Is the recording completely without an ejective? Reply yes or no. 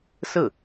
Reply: yes